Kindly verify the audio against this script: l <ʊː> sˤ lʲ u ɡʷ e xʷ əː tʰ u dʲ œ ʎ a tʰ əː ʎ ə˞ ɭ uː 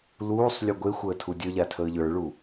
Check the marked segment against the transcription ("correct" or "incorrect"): incorrect